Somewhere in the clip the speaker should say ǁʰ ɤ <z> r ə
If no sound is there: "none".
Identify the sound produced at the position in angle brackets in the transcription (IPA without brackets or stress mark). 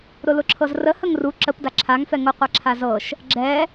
z